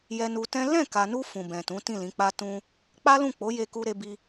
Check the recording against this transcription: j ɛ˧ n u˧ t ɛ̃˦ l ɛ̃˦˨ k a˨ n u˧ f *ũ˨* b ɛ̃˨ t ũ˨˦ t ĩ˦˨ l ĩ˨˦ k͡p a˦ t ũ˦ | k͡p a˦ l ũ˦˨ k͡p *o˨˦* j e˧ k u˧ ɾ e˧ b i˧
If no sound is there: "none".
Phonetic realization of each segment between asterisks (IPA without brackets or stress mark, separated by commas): ũ˨, o˨˦